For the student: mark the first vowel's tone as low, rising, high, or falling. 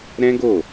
high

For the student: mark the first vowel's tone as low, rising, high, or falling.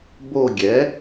falling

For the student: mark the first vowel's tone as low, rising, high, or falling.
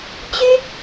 high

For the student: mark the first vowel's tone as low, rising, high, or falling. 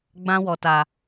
high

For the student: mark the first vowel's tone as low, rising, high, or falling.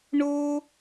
high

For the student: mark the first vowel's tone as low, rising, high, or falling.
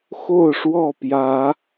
falling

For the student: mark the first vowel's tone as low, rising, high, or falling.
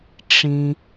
low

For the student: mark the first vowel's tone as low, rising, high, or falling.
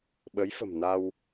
rising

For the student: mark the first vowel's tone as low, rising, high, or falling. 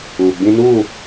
low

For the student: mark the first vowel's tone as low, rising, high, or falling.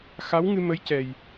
rising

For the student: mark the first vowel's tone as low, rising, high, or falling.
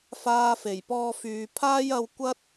high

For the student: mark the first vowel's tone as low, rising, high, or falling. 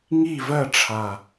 falling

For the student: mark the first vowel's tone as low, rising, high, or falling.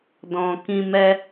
low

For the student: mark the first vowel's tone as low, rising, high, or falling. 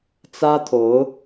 high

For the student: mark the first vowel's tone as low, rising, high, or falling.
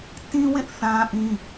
high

